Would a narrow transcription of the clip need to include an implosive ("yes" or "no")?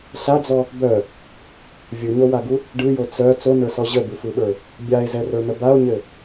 yes